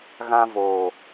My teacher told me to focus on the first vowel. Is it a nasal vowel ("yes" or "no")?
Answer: yes